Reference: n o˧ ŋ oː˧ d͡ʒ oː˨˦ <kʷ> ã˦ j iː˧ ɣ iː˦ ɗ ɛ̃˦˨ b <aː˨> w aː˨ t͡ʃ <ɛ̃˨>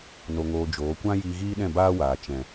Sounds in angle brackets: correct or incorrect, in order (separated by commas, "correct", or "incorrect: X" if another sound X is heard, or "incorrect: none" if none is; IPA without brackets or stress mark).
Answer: correct, incorrect: aː˦, correct